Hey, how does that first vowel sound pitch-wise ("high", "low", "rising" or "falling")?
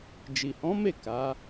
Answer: low